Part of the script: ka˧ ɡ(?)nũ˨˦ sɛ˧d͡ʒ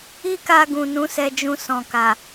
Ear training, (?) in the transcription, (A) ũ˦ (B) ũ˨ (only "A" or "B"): B